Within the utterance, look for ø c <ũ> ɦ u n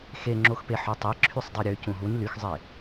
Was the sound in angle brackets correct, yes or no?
yes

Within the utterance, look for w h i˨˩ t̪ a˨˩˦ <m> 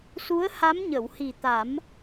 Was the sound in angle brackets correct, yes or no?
yes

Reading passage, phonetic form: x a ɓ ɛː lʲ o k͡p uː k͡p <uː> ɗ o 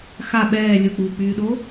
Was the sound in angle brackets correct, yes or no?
no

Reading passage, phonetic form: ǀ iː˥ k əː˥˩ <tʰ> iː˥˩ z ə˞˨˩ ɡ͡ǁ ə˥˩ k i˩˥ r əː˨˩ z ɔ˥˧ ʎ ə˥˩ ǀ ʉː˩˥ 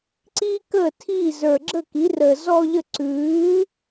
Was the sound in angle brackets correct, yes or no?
yes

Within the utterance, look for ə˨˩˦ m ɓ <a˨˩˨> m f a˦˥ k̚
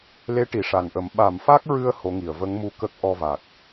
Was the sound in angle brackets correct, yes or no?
yes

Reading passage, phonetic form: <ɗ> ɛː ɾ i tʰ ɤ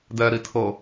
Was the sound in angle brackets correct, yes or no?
no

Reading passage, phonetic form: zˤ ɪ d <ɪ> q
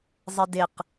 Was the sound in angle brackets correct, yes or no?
yes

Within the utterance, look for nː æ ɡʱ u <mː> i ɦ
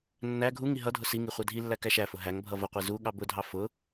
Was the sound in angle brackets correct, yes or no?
no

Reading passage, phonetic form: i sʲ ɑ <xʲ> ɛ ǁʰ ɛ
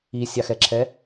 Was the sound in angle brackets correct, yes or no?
no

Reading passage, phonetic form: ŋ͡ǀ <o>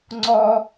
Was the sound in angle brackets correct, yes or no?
no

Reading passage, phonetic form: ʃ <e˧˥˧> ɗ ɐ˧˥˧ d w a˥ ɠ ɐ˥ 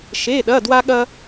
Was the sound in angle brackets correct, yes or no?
yes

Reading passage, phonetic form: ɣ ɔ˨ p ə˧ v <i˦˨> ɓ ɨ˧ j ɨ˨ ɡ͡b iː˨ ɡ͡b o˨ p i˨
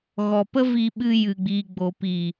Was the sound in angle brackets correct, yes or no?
no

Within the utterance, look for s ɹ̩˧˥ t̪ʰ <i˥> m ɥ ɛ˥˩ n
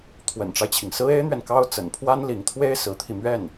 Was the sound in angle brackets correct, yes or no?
no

